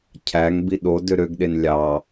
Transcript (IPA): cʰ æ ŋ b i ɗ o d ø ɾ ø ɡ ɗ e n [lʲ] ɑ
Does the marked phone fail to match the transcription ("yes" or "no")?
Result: no